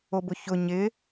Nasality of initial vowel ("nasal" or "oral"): oral